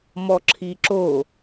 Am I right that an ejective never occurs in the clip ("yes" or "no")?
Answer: yes